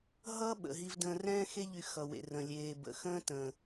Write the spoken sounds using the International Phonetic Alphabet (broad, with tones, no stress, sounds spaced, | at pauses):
ɦ ʌ˦ ɓ ə̰˨ ɦ i˧ v d ə̃ː˧ r ɛ̃ː˦ x e˦ ʎ y˧ x ʌ˨ w ḛ˨ r ə̃˨ lʲ eː˨ b ə̰˨ x ə̃ː˦ t ə̃ː˨